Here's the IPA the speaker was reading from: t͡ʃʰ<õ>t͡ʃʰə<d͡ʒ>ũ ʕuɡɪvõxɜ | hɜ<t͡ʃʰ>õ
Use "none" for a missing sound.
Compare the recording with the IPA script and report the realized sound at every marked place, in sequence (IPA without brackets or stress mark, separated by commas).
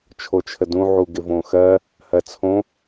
o, d, t͡sʰ